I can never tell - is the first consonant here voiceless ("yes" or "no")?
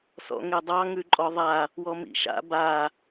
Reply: yes